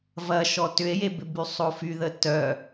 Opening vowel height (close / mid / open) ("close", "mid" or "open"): open